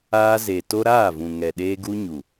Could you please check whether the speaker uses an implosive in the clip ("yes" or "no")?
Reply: yes